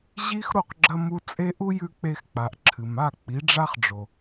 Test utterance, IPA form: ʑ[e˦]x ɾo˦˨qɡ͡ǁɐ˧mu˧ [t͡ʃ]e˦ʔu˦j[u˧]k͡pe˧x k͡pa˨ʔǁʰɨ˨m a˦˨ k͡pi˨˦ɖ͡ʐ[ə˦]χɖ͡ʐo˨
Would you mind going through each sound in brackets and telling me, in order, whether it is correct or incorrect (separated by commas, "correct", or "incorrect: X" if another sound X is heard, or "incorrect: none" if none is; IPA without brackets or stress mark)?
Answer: incorrect: i˦, incorrect: t͡sʼ, incorrect: ʉ˧, incorrect: a˦